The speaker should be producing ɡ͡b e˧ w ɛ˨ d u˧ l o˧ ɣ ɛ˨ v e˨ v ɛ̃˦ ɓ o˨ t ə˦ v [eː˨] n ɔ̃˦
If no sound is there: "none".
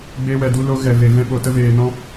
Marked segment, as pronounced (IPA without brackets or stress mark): eː˨